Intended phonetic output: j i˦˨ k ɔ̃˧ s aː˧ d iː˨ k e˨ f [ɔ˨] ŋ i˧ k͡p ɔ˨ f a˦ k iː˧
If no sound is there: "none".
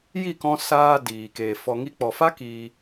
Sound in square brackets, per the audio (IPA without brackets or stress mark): ɔ˨